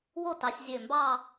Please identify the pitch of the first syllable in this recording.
falling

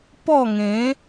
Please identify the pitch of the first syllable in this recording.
falling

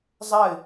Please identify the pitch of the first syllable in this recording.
falling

